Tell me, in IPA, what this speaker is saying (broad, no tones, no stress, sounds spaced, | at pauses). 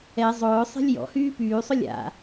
ɛ zˤ ʊː sˤ e̤ lʲ j ɔ̰ h yː p yː sˤ ʊ lʲ a̰